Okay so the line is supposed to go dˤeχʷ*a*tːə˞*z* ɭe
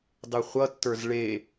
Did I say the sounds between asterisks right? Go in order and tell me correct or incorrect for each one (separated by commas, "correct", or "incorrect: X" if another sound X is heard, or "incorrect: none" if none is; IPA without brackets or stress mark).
incorrect: ʌ, correct